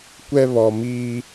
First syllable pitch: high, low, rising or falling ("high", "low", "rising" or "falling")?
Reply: high